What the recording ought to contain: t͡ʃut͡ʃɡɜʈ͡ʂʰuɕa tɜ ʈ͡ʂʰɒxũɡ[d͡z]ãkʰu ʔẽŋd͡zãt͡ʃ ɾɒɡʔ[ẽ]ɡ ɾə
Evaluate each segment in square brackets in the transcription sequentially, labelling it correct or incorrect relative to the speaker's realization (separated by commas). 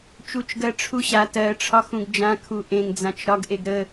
incorrect, incorrect